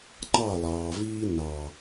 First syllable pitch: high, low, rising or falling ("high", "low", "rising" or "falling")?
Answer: falling